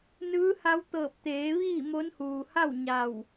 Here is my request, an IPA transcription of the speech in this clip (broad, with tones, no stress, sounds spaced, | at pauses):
n ɯː˧˥ h a˧˥ w t̪ ɤː˧˩ p̚ t̪ eː˩˧ ʋ iː˥˨ m o˧˥ n h uː˩ h a˥˨ w ɲ a˧˩ w